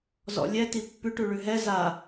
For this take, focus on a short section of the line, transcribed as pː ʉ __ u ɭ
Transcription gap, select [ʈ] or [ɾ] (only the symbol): ʈ